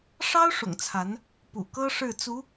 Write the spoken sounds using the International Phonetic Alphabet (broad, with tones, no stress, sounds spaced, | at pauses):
ʂ ɑ˥ ʊ̯ ʂ ʊ̰˨˩ ŋ t͡sʰ a˧˥ n | p ṵ˨˩ k ɤ˥ ʂ ɻ̩˥˩ t͡s u˧˥